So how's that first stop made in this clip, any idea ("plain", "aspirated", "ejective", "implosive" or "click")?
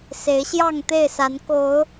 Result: plain